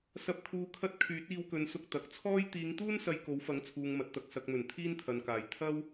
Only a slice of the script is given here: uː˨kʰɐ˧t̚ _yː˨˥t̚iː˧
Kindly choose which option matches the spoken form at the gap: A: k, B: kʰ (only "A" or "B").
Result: B